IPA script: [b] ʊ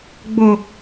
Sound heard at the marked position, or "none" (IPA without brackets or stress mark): ɡ͡b